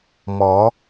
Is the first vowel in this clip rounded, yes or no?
yes